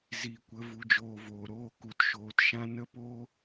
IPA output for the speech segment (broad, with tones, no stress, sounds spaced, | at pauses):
z i˨ kʷ ə˨˦ v u˧ d͡ʒ oː˧ v oː˨ ɾ oː˧ k u˨ t ʃ oː˨ t ʃ ã˦ n ə˦ p oː˦